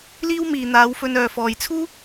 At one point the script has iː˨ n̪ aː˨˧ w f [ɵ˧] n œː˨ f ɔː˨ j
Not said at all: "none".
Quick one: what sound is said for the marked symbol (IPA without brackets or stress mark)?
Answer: ɵ˧